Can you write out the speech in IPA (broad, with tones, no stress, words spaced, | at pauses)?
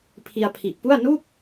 pʰi˧a̯pʰi˨˩ʔpu˥˩a̯ nu˥˩k̚